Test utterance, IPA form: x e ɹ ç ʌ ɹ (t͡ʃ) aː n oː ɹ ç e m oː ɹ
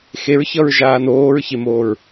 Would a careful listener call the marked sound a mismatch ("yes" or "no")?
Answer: yes